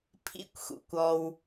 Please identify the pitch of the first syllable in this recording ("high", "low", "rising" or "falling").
high